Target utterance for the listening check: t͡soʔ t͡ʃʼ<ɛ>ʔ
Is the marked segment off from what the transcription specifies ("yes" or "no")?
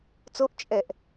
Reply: no